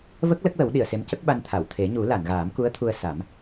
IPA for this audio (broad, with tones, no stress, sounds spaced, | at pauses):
v ə˦˥ k̚ l ə˦˥ k̚ w ə˨˩˦ w ɗ i˨˩˨ ə̯ s e˧˥ m c ə˦˥ k̚ ɓ a˧ n t̪ʰ a˨˩˨ w t̪ʰ e˨˩˦ ɲ u˨˩˦ l a˨˩˨ n ɣ aː˨˩˦ m k u˧˥ ə̯ t̪ʰ u˧ ə̯ s a˨˩˦ m